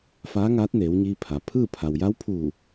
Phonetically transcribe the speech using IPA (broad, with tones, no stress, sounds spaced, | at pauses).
f aː˧˥ ŋ aː˧˥ t̚ n eː˩˧ w ɲ iː˧ pʰ a˩ pʰ ɯː˥˨ pʰ a˩ w j a˧˥ w pʰ uː˧˩